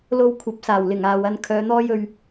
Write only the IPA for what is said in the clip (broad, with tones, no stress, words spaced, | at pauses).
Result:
lo˧w kʷʰɐ˨˥p̚saː˨˩wlɪ˨˩ŋ aː˨wɐ˧n kʰœː˨˧n̪ɔː˥jɵ˧ɥ